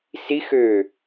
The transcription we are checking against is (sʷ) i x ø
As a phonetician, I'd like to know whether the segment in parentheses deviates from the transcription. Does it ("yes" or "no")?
yes